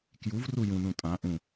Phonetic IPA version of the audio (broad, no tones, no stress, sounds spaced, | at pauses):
k j u v r u j ũ n ũ tʼ ã ʔ ũ